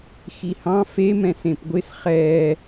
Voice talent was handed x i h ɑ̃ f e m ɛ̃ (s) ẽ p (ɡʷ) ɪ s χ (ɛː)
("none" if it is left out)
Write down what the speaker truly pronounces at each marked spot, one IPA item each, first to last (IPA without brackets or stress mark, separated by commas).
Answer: s, ɡʷ, ɛː